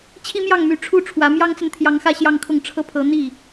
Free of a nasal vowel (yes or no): yes